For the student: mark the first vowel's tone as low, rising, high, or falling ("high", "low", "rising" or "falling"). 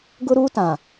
high